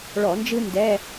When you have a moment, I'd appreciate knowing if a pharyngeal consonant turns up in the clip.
no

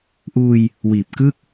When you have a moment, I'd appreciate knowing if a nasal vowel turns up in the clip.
no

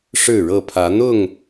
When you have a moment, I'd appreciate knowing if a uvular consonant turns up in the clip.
no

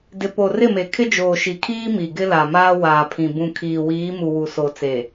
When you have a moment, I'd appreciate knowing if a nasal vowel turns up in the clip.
yes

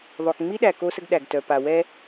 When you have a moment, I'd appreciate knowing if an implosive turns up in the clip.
yes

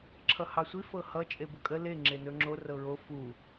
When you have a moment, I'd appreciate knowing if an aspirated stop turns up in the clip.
yes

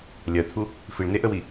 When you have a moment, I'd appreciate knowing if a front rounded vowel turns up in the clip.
no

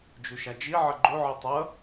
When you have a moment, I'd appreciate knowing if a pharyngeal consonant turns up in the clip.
yes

